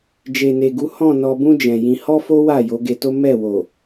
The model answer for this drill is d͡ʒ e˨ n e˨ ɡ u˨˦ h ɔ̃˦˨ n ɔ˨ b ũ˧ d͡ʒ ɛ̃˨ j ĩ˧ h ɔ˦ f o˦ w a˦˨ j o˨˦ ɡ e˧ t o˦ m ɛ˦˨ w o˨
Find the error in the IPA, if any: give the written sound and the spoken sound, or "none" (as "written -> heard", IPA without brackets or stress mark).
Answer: none